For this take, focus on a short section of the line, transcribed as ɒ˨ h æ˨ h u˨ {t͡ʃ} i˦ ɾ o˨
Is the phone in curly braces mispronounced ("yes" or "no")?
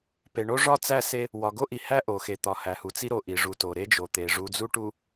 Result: yes